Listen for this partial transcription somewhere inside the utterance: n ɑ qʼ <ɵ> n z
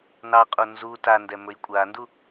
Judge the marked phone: incorrect: o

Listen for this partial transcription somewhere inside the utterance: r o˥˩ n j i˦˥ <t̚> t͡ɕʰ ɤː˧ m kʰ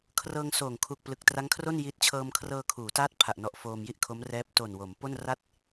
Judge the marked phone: correct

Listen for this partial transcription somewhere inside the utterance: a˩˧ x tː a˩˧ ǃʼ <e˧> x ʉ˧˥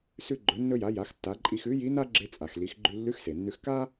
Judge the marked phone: incorrect: i˧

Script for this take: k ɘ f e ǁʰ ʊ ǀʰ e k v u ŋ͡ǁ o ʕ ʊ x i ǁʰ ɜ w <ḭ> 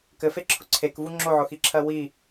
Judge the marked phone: incorrect: i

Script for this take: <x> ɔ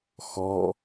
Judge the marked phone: correct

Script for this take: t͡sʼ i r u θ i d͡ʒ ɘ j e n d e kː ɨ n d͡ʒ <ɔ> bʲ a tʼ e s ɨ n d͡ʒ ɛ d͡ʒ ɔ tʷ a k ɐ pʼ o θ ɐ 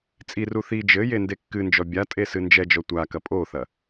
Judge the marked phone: correct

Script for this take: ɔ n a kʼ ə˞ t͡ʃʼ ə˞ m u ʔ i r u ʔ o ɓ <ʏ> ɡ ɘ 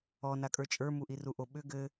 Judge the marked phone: correct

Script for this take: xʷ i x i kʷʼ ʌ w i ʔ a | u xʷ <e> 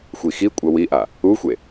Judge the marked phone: correct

